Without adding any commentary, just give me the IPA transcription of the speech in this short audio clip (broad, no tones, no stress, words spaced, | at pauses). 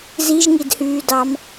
ziʒŋidhyːdɑm